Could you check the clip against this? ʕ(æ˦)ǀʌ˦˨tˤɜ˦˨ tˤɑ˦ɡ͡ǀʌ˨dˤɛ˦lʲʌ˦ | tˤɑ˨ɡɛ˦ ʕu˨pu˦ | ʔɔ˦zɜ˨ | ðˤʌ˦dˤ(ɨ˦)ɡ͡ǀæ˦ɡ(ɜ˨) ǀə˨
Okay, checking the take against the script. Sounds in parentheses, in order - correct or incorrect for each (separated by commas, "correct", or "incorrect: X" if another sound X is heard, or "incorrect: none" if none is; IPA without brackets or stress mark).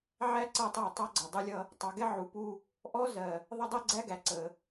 correct, incorrect: ɛ˦, incorrect: æ˨